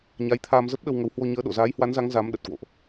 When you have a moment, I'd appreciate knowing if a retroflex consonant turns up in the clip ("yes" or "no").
no